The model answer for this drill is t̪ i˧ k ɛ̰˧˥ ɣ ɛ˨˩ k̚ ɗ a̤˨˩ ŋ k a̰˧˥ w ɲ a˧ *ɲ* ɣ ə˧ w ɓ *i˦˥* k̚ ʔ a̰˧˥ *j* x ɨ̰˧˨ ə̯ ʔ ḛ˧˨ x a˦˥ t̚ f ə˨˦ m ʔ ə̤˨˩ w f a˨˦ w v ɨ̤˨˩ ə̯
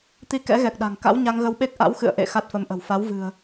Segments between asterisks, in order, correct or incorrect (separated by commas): incorrect, incorrect, incorrect